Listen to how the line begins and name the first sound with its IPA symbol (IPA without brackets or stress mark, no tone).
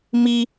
m